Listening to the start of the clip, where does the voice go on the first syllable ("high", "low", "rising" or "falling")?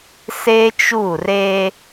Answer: high